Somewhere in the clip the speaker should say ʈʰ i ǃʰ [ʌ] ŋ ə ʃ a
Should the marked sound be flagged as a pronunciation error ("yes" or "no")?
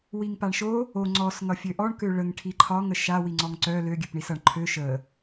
yes